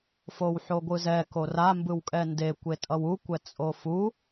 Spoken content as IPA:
f o w ħ o ɡʷ ɯ z ɛ k o r a m b ɯ w kʼ ɛ n d e kʷ e tʼ ʌ w u kʷ ɛ t͡sʼ o f u

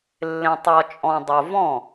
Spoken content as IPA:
lː ẽ˨ tˤ ɔ˨ t͡ʃʼ ɔ̃˨ dˤ o˨ v ɔ̃˥˩

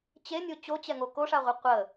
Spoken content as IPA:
t͡ɕ e nʲ o t͡ɕ o t͡ɕ ɛ ŋ o k o ʂ a ʁʷ ɨ qʷ ə

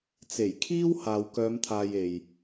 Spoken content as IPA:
t͡s e˨˩ j kʰ iː˥ w h aː˨ w k œː˨˧ m t̪ʰ aː˨ j e˨ j

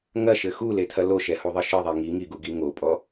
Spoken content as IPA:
ŋ ɐ ʃ ɘ x u l e tʰ ɐ l o ʃ ɛ h u ðˤ ɨ ʃ ɨ ðˤ i ŋ i ŋ i ɡ u ɡ i ŋ o pʼ ɔ

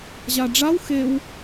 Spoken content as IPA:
ʑ a ɖ͡ʐ a w x e w

